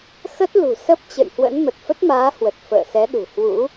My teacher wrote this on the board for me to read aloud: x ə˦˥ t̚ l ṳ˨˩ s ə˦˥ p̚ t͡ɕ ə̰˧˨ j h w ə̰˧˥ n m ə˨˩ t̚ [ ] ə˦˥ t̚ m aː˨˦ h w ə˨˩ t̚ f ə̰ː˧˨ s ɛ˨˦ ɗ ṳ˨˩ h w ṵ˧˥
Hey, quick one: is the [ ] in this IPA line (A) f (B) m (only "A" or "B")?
A